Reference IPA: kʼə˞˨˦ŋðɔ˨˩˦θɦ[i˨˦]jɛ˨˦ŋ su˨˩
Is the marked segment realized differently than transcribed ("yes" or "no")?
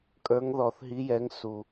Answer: no